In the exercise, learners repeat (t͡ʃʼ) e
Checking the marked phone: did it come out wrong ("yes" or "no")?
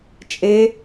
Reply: no